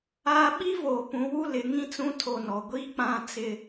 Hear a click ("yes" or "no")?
no